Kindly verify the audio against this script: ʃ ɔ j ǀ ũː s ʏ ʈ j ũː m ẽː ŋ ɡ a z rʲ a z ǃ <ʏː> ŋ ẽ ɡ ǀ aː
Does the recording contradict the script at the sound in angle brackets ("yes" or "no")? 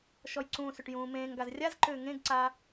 no